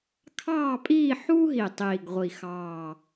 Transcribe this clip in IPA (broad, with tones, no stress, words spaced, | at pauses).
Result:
kʰɑː˥˧pʼiː˥˧ħuː˥ɦi˨˩ tˤiː˨˩ɡʁʷi˨˩xɑː˨˩